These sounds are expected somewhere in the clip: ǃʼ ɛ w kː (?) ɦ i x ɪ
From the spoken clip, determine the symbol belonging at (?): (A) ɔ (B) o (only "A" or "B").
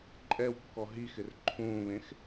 A